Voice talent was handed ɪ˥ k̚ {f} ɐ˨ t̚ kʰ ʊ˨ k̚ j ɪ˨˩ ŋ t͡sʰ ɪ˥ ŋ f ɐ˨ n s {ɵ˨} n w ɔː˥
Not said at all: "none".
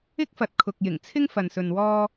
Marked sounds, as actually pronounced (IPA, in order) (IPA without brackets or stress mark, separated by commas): f, ɵ˨